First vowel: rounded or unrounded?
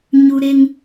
rounded